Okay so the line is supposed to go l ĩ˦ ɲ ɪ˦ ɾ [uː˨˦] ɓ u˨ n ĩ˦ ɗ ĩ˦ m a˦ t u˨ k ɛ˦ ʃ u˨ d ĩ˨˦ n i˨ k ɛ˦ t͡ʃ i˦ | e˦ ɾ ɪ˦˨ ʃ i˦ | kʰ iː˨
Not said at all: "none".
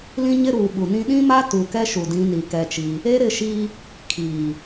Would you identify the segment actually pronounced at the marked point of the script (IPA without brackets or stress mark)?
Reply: uː˨